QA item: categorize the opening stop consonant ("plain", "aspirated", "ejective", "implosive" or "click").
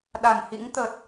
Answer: implosive